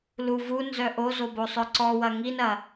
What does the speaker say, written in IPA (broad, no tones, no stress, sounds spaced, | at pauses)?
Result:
l u v u n z œ ʔ o z o b o sˤ œ ǀ ɔ w ɐ ŋ i n ɐ